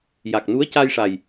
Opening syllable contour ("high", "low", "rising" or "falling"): low